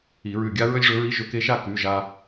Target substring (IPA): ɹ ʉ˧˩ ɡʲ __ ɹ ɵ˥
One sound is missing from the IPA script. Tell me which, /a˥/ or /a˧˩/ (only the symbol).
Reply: a˥